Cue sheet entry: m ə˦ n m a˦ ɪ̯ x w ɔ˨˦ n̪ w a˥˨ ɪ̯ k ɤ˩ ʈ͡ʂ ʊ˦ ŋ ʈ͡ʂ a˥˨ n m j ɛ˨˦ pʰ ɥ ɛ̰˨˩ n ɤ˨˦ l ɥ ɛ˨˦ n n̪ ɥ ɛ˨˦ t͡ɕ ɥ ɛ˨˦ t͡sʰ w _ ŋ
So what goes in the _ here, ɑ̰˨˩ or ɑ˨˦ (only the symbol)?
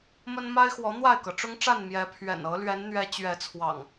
ɑ̰˨˩